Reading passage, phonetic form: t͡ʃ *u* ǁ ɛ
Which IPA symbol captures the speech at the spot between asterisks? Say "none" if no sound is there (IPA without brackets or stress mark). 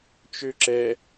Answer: ø